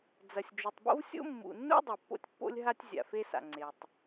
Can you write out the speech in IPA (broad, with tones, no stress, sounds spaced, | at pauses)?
d͡z ɐ˨ sʲ d͡ʒ u˨ tˤ b o̰˦ v sʲ o̰˦ mː ṵ˨ nː ṵ˦ dˤ e˨ pː o̰˦ tʲ pː o̰˦ lʲ ɦ a˦ tʲ zʲ a̰˨ f e˦ s a̰˨ ŋ͡ǀ e˨ tˤ